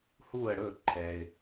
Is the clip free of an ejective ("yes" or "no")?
yes